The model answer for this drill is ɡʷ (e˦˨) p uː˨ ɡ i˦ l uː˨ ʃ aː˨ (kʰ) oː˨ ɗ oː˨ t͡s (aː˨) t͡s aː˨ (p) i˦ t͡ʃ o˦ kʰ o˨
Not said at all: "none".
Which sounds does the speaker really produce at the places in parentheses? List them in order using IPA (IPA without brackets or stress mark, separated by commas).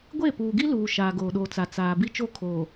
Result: e˦˨, ɡ, a˨, b